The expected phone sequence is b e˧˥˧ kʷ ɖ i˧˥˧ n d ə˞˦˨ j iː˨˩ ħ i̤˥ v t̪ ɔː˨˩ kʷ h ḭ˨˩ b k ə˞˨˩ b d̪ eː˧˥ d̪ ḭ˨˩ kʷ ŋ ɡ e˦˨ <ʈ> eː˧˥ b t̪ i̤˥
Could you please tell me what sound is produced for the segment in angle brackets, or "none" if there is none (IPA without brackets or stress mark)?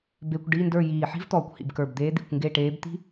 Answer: ʈ